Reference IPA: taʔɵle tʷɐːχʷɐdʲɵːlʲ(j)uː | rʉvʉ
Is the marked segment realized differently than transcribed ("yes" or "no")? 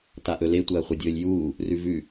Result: no